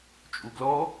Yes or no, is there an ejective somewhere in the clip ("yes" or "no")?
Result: yes